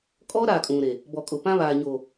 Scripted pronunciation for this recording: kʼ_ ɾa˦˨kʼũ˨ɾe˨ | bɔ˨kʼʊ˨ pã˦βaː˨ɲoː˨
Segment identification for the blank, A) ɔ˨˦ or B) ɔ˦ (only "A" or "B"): B